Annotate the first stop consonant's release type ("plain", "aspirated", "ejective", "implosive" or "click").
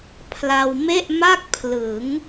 aspirated